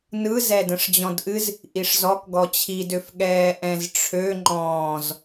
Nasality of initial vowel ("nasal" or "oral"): oral